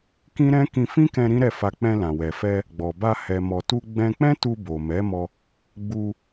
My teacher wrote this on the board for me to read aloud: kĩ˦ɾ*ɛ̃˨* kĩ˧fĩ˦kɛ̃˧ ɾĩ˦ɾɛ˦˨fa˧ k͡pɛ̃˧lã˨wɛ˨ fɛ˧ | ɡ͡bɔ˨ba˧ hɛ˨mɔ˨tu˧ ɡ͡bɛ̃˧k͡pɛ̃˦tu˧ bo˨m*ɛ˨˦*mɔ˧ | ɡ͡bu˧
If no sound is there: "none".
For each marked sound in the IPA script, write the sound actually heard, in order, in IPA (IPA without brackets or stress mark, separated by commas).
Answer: ɛ̃˦, ɛ˨˦